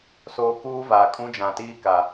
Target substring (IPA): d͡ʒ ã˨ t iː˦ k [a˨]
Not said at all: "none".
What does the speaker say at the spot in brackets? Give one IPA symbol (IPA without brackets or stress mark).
a˨